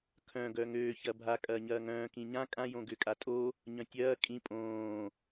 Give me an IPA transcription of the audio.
kʰ œ̃ ɡ œ ŋ øː ç ɐ bʱ a kʼ ɐː ɲ ɐː ŋ œ̃ː k ĩ ɲ ã kʼ ã j õ ɡ ʏ kʼ a tʼ o | ɲ œ̃ tʲ ɐː kʼ ĩ pʼ õː

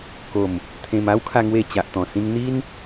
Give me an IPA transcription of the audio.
k o˨˩ m | t̪ʰ ẽ˧ m a˦ w kʰ a˧ ŋ w e˥˧ t͡ɕ a˨ ʔ t̪ ɔ̃˨˩ s ĩ˧ ŋ n̪ i˦ n

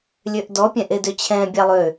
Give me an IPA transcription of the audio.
lʲ ø ʔ d ɔ pʲ ɛ̃ ʔ e d ø t͡ɕʰ ɛ̃ bʲ ɑ lˠ ø

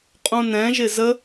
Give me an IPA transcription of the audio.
qʼ ũ n ɛ̃ ʒ ɪ z ə

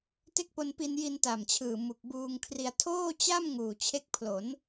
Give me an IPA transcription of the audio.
t e˦˥ k̚ p o˧ n p i˧ n j i˧ n t a˨˩ m t͡ɕʰ ɯː˨˩ m u˨˩ k̚ b uː˧ ŋ kʰ r i˧ a̯ tʰ oː˥˩ t͡ɕ a˥˩ m ŋ uː˨˩ t͡ɕʰ e˦˥ k̚ pʰ l o˩˦ n

